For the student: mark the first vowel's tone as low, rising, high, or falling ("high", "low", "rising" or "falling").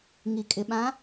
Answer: low